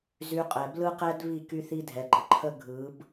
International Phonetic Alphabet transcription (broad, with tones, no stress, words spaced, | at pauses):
zy˧qʼɛ˨ blɯ˦qɛ˦d βi˦˨ ky˦θi˦ dʱɛ˨ɡ͡ǃə˨ ǃʰə˦ ɡʱɯ˨˦b